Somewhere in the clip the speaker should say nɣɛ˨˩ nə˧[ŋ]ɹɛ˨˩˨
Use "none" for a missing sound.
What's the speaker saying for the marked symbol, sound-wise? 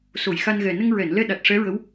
ŋ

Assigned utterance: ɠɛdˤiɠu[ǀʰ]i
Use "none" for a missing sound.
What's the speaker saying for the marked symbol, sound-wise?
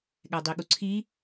ǀʰ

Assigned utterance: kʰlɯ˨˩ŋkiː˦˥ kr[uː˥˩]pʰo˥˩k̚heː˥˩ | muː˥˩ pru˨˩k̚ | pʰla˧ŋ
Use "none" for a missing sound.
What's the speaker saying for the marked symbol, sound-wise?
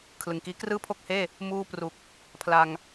ɯː˥˩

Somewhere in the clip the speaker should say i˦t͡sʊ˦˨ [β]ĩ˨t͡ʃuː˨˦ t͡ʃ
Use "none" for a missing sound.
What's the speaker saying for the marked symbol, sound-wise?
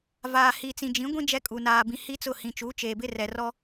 h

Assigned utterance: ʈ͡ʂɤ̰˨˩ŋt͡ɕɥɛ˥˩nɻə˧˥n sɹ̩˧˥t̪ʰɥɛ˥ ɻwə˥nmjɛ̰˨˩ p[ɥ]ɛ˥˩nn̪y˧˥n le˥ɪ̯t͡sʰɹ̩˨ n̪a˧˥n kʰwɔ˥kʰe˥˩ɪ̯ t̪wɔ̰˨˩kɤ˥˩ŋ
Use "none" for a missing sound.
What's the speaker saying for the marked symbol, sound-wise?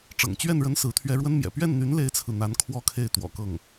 ɥ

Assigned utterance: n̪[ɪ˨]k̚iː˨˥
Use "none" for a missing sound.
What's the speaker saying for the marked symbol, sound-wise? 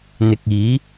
ɪ˨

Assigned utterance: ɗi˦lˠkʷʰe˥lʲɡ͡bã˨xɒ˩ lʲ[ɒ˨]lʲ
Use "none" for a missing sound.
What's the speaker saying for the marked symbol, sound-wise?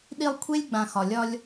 ɒ˦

